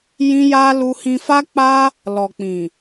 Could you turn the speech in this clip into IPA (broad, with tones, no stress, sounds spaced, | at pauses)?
j ĩ˦ j a˦ l u˧ h ĩ˧ f a˦ k͡p a˦ | l ɔ˨ k͡p ĩ˨